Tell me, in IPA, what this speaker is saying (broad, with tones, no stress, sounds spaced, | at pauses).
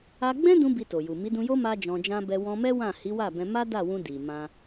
a˧ ɡ͡b ɛ̃˦ d ũ˦ b i˧ t o˨ j u˨ m i˨˦ d ũ˧ j o˦ m a˦ d͡ʒ ɔ̃˧ d͡ʒ ã˦ b ɛ˧ w ɔ̃˧ m ɛ˦ w ã˦˨ h i˨˦ w a˦˨ b ɛ̃˧ m a˦ d a˦˨ w ũ˧ d i˨ m ã˧